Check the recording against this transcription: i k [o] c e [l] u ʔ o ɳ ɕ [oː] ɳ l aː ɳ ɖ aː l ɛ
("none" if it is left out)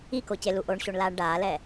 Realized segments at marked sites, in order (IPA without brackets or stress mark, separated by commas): o, l, o